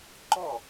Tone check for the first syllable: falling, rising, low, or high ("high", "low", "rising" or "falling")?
falling